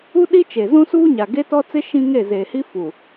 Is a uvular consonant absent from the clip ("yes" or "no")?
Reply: yes